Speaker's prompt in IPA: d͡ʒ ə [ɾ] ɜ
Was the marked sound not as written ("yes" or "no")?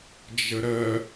no